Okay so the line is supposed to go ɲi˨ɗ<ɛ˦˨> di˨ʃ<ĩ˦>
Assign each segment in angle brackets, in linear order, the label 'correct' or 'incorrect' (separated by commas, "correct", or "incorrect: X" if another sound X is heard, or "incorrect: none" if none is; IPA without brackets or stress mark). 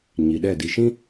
correct, correct